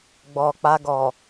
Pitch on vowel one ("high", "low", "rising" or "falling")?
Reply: low